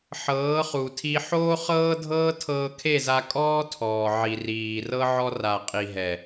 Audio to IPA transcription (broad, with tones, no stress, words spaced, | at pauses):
ħɤː˨˦χu˨tʰi˧ ħoː˦χɤː˦ dʱɤː˦ tʰɤː˧kʰe˦˨za˧ kʼɔː˦tʰɔː˨ ʕi˨riː˨ rɤ˦ ʕɔ˧ra˨ qʼi˨ɦɛ˨